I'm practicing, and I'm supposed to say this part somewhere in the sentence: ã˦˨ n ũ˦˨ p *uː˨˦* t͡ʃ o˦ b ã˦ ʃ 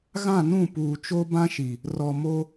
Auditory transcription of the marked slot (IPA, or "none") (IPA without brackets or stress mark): uː˨